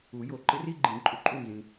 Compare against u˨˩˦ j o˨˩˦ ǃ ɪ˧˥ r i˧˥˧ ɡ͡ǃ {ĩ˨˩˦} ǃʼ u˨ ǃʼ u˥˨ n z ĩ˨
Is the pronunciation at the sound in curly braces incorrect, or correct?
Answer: correct